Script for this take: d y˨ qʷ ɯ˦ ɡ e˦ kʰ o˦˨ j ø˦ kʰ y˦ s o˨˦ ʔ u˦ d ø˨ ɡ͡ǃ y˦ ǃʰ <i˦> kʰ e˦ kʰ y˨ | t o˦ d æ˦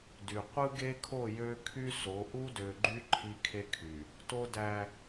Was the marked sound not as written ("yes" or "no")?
no